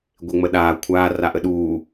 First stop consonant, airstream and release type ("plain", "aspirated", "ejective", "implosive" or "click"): plain